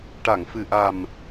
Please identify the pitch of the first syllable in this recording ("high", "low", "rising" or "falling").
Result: low